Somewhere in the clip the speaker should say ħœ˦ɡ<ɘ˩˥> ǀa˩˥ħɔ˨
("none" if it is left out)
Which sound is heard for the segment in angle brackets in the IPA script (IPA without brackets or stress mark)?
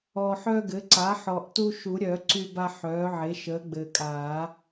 ɘ˩˥